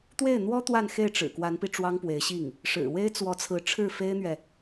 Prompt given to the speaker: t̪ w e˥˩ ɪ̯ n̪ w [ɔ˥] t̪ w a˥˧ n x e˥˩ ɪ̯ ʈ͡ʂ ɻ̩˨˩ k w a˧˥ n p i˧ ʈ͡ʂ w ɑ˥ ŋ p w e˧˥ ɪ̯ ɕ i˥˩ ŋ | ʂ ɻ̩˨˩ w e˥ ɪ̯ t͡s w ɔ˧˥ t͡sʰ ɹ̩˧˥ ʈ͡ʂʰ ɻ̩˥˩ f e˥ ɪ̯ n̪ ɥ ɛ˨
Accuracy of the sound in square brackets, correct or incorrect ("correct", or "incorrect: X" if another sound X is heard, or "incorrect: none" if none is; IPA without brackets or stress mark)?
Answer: correct